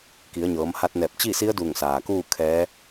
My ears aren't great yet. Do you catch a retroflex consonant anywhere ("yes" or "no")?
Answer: no